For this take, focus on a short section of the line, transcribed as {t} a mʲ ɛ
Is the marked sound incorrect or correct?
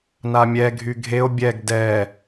incorrect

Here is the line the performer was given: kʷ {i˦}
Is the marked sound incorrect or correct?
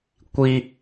correct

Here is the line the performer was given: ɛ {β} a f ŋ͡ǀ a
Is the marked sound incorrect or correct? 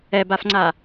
incorrect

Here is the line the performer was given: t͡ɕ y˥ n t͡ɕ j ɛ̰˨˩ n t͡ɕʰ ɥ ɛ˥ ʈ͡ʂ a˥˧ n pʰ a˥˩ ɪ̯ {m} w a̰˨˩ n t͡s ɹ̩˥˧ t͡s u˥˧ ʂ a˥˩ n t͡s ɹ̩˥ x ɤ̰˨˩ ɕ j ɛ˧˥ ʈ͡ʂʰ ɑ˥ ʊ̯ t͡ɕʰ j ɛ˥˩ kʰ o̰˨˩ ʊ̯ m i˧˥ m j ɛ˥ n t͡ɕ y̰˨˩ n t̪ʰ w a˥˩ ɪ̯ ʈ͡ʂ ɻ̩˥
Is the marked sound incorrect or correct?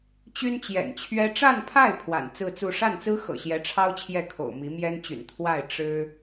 incorrect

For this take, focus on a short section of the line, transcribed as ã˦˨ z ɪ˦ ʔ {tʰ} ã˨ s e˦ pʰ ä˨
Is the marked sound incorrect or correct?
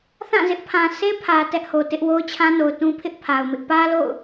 incorrect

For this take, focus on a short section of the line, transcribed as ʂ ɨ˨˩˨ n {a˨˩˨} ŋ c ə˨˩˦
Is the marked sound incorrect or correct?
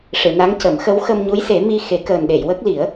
incorrect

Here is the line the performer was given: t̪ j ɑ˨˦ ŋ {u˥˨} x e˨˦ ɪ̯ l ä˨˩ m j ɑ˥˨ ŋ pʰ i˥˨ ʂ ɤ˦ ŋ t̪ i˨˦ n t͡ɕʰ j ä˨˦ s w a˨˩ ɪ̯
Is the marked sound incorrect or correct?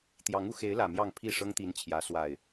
incorrect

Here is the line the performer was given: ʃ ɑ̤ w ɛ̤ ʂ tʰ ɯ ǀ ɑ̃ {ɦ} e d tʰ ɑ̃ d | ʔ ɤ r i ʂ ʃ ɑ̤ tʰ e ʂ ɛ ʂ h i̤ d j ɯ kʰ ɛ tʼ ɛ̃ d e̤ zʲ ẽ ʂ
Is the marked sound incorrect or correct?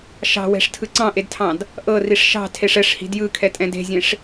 incorrect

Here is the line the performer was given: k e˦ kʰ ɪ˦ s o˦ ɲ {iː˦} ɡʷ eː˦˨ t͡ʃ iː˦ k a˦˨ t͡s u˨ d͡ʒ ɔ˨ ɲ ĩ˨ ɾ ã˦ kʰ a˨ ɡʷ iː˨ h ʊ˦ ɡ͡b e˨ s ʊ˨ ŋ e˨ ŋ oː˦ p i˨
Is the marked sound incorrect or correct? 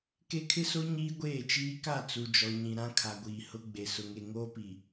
correct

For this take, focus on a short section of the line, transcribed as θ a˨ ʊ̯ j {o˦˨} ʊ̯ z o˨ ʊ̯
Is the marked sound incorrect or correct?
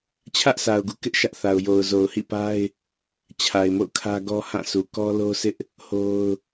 incorrect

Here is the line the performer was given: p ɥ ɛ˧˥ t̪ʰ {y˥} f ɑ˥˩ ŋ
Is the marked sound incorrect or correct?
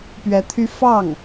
correct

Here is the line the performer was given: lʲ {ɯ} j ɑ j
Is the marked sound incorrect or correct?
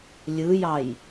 correct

